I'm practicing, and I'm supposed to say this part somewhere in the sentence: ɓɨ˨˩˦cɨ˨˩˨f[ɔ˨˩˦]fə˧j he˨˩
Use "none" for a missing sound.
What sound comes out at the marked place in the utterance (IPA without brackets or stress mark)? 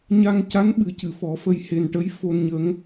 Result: ɔ˨˩˦